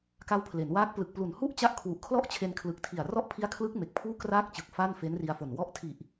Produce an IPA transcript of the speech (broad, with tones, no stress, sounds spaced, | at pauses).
k a˦˥ w pʰ l e˩˦ n w aː˦˥ k̚ p l ɯ˨˩ k̚ p l u˨˩ n h u˥˩ ʔ t͡ɕ a˦˥ ʔ kʰ w u˨˩ ʔ kʰ l ɔ˥˩ ʔ t͡ɕʰ e˧ n kʰ l ɯ˨˩ k̚ tʰ i˨˩ a̯ r ɔ˥˩ ʔ pʰ i˦˥ a̯ kʰ l ɯ˦˥ k̚ m e˨˩ k̚ pʰ uː˥˩ k r aː˥˩ k̚ t͡ɕ ɯ˨˩ k̚ f a˥˩ n f e˦˥ n r i˧ a̯ f o˨˩ n w ɔ˦˥ ʔ tʰ i˨˩ ʔ